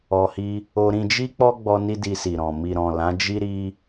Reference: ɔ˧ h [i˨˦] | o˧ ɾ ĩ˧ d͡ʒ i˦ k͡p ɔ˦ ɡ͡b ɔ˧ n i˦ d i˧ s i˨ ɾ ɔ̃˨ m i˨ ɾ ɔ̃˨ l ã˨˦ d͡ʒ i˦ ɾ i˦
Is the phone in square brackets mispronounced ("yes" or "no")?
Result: yes